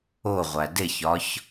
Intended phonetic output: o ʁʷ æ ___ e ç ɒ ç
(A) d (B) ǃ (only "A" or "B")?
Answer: A